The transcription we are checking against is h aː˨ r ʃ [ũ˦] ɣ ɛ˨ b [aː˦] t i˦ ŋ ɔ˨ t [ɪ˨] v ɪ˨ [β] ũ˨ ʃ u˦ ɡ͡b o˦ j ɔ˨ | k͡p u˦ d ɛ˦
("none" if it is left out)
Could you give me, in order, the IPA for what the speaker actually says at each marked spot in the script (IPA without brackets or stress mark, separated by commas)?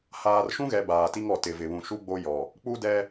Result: ũ˦, aː˨, ɪ˨, β